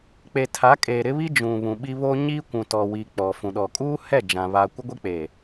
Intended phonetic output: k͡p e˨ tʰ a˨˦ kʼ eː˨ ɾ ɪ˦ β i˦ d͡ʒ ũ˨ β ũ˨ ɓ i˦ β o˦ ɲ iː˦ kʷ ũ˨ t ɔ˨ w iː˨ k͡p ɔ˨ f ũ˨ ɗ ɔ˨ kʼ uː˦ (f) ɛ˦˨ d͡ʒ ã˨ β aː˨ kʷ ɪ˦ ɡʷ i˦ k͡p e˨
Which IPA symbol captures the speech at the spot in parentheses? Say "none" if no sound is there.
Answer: h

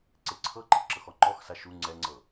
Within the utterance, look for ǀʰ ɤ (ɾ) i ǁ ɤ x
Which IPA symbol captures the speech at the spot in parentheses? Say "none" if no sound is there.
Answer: ǃ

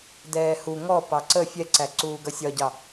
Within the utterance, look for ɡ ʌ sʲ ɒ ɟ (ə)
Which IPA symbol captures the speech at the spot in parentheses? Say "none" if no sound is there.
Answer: ɑ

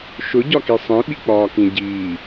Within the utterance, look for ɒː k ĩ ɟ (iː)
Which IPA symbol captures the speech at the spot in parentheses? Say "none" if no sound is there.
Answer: iː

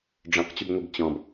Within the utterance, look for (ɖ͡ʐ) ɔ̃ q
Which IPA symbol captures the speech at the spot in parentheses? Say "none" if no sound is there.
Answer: ɖ͡ʐ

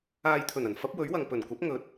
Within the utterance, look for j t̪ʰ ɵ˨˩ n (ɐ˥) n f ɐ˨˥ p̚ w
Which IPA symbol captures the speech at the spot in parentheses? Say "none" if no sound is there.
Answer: ɐ˨˩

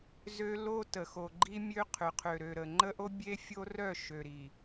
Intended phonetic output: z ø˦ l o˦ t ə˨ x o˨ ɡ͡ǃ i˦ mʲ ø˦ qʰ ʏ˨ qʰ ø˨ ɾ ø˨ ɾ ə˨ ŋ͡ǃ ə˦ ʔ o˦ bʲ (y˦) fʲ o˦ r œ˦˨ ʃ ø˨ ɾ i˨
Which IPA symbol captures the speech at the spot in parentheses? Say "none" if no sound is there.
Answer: e˦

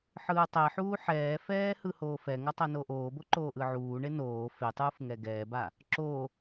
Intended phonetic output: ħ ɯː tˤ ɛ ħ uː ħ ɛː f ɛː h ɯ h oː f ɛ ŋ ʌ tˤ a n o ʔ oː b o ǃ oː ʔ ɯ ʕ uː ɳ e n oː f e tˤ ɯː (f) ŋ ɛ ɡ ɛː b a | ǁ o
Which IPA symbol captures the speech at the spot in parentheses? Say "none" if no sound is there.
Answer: f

